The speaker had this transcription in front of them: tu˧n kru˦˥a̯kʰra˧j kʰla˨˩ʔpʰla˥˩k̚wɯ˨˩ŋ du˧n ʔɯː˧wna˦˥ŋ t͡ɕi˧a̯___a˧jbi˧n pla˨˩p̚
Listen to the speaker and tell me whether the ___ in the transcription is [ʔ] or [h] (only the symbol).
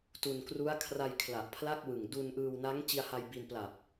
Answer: h